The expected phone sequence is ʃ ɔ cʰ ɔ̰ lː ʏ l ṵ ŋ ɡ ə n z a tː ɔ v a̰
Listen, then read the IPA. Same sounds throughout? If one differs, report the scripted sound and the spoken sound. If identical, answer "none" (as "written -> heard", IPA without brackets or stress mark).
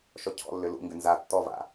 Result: ə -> ʏ